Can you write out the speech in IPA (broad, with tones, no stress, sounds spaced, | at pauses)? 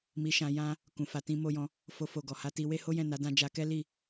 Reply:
m i˧ ʃ ã˧ j ã˦ | k ũ˨ f a˨˦ t ĩ˧ m o˧ j ɔ̃˧ | f o˧ f o˨ ɡ ɔ˨ h a˧ t i˧ w e˦ h o˦ j ɛ̃˦˨ n a˨˦ d ã˧ d͡ʒ a˧ k ɛ˦ l i˦˨